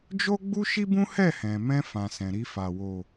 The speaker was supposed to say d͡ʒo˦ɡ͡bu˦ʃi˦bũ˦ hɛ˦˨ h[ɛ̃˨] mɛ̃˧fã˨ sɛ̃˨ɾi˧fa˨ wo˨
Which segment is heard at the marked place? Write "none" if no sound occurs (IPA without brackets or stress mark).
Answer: ɛ̃˨